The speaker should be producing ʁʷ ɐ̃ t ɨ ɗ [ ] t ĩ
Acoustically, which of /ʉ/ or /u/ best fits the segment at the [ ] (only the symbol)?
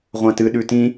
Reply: ʉ